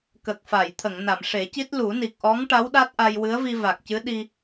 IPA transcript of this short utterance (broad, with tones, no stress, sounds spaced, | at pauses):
k ə˨˩ k̚ f a˨˩˨ j t̪ʰ ə˨˩˨ ŋ n a˨˩˨ m ʂ e˨˩˦ c i˦˥ t̚ l u˨˩˦ n i˨˩ k̚ ʔ ɔ˧˥ ŋ ʈ a˧˥ w ɗ a˦˥ t̚ ʔ a˧ j w ɨ˧˥ ə̯ v i˧ v a˨˩ k̚ c ɨ˧˥ ɗ i˧